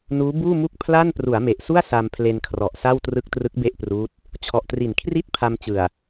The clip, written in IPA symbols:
nuː˦˥buː˥˩mu˥˩k̚ pʰla˥˩n pru˩˦a̯me˨˩ʔsu˥˩a̯ sa˧mpʰle˧nkʰrɔ˨˩ʔ sa˥˩wtrɯ˦˥k̚trɯ˦˥k̚ be˥˩ʔpruː˦˥t̚ | t͡ɕʰɔ˨˩ʔtri˨˩nkʰri˥˩t̚ pʰa˧mt͡ɕɯ˨˩a̯

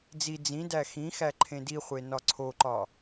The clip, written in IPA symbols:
d͡zi d͡zĩ dæxĩxæ ǃʰẽdiχʷe nɒǀʰoǃɒ

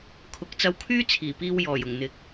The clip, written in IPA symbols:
kʰʊ˨˥k̚t͡sɐ˧wkʰyː˥ t͡sʰiː˨˩piː˧w jɔː˨˩j ʊ˨˩ŋn̪ɪ˨˥k̚

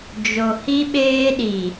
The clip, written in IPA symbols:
d͡ʒo˨hi˦ɓeː˦ɗi˨

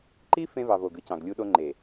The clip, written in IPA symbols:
ǃi˦ fẽ˦vɑ˨ vo˨ɡɯ˦ cɑ̃˨ɡlʲu˦ɗo˦ ŋ͡ǃe˨

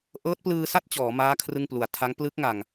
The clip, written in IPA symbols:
ʔɤː˦˥t̚plɯː˧sa˥˩t̚ t͡ɕɔː˩˦maː˦˥ kʰrɯ˥˩ŋplu˨˩a̯ tʰa˦˥ŋ plɯ˦˥k̚ŋa˨˩ŋ

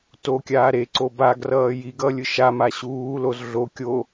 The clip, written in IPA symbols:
tokʲaː ɾeǀo baɡrʌː jiɡʌ lʲɯʃama ɕuːloz ɮo kʲo

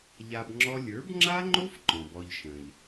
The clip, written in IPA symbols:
ʎa˧b ŋ͡ǁɔ˦ lʲə˞˨˦bŋ͡ǁa˦ŋ͡ǃo˦f ǃɔ̃˨bɔ˧ʎʃə̃˨ʎ

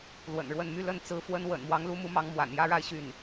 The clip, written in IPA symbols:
lwə̰˨˩nɻwə˥˧n my˥˧ lə˥˩n t͡sɹ̩˧˥ fwə˥nwə̰˨˩n mwɑ˧˥ŋlu˧˥mu˧˥ mɑ˧˥ŋmwa̰˨˩njä˥ ɻa˥˧ɪ̯ ɕy˥˩n

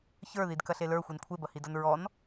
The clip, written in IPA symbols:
çə˞ðidkɐɬe lə˞xʷin kʷʰebɐhidɐn ɹɔn

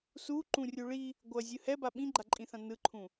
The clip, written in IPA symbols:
su ǃũrʲuɭi | ɡʷʌ zʲɯhɛba ɓĩɡ͡ǃaǃʼĩθã nɯǃʰũ

